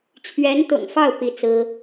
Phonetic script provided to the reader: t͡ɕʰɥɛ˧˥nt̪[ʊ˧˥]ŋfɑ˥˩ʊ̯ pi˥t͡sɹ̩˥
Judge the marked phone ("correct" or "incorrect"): incorrect